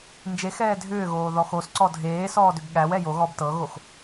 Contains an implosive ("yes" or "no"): yes